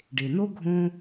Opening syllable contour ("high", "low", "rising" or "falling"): low